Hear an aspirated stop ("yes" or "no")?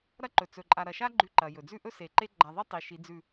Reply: no